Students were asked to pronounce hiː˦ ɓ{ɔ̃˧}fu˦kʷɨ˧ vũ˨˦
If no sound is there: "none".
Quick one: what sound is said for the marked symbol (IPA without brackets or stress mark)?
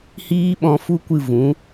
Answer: ɔ̃˧